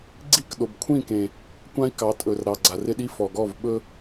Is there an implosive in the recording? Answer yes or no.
yes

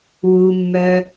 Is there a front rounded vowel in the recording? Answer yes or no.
yes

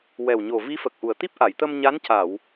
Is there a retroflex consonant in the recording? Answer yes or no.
no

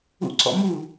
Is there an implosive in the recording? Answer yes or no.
no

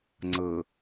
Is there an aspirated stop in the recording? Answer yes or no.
no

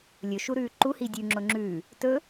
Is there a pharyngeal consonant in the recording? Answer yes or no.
no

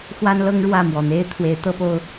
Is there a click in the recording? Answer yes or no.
no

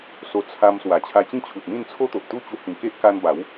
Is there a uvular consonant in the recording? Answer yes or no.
no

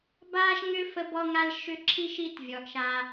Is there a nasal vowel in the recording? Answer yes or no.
no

